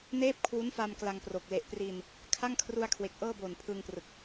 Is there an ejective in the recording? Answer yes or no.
no